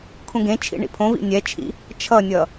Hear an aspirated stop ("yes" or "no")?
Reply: yes